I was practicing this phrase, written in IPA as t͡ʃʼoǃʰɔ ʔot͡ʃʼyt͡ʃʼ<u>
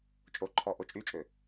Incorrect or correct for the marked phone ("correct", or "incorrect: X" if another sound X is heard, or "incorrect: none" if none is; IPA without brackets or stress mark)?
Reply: incorrect: ø